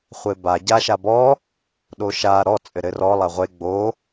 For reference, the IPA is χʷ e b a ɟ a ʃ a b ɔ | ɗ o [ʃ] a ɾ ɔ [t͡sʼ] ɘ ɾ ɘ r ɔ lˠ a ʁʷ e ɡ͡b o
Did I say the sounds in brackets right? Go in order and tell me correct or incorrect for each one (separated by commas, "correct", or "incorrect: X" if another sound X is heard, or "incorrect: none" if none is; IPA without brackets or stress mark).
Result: correct, correct